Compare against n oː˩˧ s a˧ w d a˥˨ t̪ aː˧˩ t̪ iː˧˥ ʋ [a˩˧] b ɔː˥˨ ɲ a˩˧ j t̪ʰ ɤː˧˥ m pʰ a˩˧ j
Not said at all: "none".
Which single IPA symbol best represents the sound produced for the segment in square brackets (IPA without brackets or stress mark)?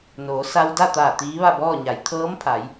a˥˨